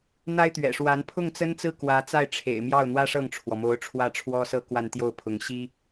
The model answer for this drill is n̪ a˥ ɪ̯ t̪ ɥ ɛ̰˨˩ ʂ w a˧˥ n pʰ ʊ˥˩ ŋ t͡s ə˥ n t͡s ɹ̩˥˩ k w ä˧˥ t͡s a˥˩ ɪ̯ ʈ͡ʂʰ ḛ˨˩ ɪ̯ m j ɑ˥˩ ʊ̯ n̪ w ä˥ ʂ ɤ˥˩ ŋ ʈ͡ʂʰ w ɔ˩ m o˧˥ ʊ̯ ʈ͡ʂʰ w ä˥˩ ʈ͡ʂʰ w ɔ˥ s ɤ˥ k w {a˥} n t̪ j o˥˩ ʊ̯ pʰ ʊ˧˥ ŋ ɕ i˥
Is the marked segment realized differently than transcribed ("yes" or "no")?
yes